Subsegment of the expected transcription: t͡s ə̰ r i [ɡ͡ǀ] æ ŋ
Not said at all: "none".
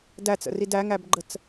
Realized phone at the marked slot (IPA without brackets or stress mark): d